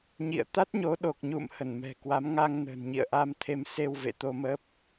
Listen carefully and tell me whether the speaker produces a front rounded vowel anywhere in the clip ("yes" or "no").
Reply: no